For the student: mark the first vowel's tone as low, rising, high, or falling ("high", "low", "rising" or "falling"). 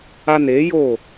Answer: high